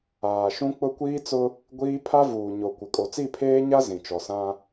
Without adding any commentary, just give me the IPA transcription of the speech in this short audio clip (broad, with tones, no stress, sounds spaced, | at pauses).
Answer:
aː˨ ʃ ũ˦ k͡p ʊ˦ kʷ iː˦ t͡s ʊ˦ | ɡʷ iː˦ pʰ a˦ v uː˨ ɲ o˨ kʷ ɪ˨ kʼ o˨ t͡s i˦˨ pʰ eː˦ ɲ a˦ z ĩ˨ t͡ʃ ɔ˨ s ã˦